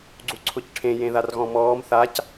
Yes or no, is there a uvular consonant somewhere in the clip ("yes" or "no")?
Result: no